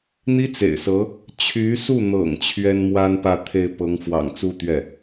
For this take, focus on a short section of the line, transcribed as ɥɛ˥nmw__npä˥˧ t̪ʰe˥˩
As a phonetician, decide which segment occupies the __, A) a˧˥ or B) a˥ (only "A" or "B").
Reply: B